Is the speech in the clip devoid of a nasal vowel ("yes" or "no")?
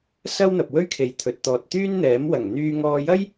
yes